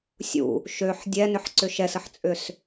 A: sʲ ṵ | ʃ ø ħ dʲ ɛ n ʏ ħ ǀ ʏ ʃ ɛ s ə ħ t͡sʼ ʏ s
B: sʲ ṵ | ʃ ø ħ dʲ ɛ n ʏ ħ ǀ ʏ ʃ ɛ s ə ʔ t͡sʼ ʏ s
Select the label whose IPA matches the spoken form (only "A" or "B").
A